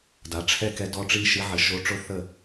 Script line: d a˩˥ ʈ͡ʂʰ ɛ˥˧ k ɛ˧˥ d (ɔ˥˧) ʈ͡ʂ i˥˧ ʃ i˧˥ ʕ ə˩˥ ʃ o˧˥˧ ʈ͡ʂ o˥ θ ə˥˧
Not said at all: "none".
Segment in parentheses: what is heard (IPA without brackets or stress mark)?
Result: ɔ˧˥˧